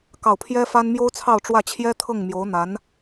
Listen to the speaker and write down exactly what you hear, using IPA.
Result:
k ɑ˥˩ ʊ̯ pʰ j ɛ˥ f a˥ n m j o˥ ʊ̯ t͡sʰ ɑ˥˧ ʊ̯ ʈ͡ʂ w ä˥˩ t͡ɕʰ j ɛ˥ t̪ʰ ɤ˥˩ ŋ m j o˧˥ ʊ̯ n̪ a˧˥ n

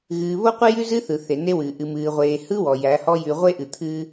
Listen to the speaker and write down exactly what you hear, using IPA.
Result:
ɣ ɨː˨ β o˦ qʷ ɨ˦ j ʉ˦ z ɨ˦ θ ɯ˨ θ e˨ n e˦ w ɨː˨ ʔ ɨ˨ m ɨː˨ ʁʷ eː˨ h ɯ˦ w ɔ˨ j æ˨˦ h ɔ˦ j ʉ˨ ʁʷ e˦ ʔ ɨ˨ t̪ʰ ɨː˦

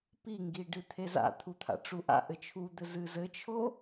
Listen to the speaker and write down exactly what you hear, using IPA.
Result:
p i ŋ ɡ i ɖ ɨ t̪ʰ e z a̰ t̪ʰ u t̪ʰ a̰ ʈ͡ʂ u ʔ a̰ ʔ ɘ t͡ʃʰ u d̪ ɘ z ɨ z ɘ t͡ʃʰ o

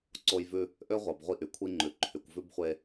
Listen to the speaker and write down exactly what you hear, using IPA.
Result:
ǀ o˦ j v ʉ˦ | ʔ ø˦ ʁʷ ɑ˨ b ʁʷ i˦ ʔ y˨ kʷʰ i˦ ŋ͡ǃ ʉ˨ ǃʰ y˨ kʷ v ʉ˦ b χʷ e˦

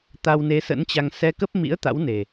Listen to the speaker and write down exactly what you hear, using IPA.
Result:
t̪ a˧ w n e˨˦ s ə̰˧˥ n t͡ɕ a˧ ŋ s ɛ˧ k ə˦˥ p̚ m ḭ˧˥ ə̯ t̪ a̰˧˥ w n e˨˩

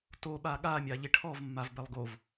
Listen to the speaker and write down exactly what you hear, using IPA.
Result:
t o ɓ a ɠ a mʲ a ʎ ɪ ʈʰ ɔ v mː a v b ɛ lˠ ɡ o v

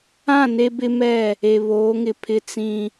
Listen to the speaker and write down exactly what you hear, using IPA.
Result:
ã˦˨ n e˦ b ɪ˦ m ɛ˦˨ | e˨ β oː˨˦ ŋ ɪ˨ pʰ ɪ˦ t͡s ĩ˦

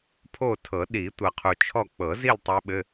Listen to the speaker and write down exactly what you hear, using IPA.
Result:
pʰ o˦˨ tʰ ɤ˨˩˦ ɗ i˨˩˦ tʷ ɤ˨ qʰ u˨ t͡ʃʰ ɔ˦˨ k͡p ɤ˨˩˦ z i˦˨ l tˤ ɛ˦˥ ɓ ɘ˧˥˧

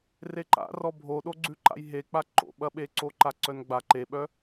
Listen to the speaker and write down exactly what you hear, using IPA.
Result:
r e ǃ a̰ r ɔ bʱ o ɗ o ɡ͡ǀ ʉ ǃ a̰ j ɦ e k͡p a ǃ o̰ ɓ ɐ ɓ e ǀ o ǃ a ǀ œ n ɡ͡b a ǃ e ɓ œ

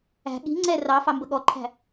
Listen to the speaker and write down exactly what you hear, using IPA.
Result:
æ̤ ɠ i̤ ŋ͡ǀ ɛ r ɑ f ɑ m b ə ɠ ɔ ǃʰ æ̤

